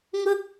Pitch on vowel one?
high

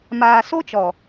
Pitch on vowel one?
low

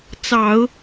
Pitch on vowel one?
low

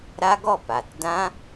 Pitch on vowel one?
high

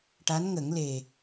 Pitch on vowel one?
rising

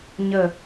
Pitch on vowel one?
low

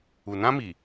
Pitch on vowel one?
low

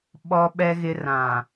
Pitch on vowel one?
low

